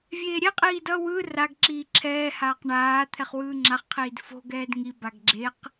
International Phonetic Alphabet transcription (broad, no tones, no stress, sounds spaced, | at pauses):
vʲ eː ɾʲ ɛ qʼ iː d ʌ w ɯ r a ɡ ǁ iː ǁʰ ɛː h aː q ɳ aː t̪ʰ ɛ χ w ɯː ŋ͡ǁ a χ qʰ iː d f o̤ ɡ ɛː d ŋ i b a ɡ ɡ͡ǁ e q